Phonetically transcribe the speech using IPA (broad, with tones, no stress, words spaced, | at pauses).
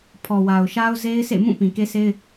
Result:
pʰɔ˨wa˨ʊ̯ ʃa˦ʊ̯ze˦ɪ̯sḛ˦˨mũ˦˨ pĩ˨ke˦se˦ɪ̯